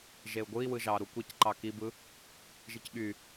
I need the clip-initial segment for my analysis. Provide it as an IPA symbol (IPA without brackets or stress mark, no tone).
ʒ